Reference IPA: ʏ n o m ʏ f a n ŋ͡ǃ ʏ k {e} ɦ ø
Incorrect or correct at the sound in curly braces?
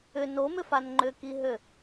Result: incorrect: i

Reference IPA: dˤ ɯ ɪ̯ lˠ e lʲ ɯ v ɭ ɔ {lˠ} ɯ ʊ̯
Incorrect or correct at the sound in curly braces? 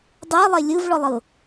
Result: correct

